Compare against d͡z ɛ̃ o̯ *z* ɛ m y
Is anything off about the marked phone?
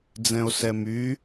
yes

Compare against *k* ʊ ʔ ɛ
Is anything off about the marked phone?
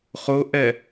yes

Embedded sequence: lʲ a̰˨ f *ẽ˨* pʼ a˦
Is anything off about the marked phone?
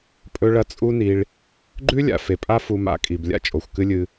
yes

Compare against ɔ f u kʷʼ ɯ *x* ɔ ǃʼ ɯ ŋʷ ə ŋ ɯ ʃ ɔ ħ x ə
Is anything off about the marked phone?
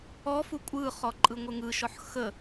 yes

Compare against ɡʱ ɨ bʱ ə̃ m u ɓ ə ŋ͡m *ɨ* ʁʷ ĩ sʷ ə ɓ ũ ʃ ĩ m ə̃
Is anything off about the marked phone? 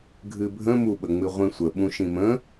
no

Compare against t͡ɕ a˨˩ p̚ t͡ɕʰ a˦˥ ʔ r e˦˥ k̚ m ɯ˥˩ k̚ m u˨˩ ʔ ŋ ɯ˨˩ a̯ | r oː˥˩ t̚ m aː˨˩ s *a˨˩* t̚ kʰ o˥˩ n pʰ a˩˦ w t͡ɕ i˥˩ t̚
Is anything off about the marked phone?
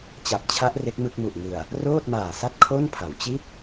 yes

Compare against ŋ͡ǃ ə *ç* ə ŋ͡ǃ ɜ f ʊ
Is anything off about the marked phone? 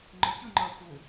no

